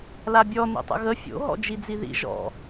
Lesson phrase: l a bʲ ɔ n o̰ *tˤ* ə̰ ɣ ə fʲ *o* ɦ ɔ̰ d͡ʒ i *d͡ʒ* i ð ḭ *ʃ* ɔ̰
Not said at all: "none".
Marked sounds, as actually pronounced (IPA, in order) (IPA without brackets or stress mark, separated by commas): tˤ, o̰, d͡z, ʒ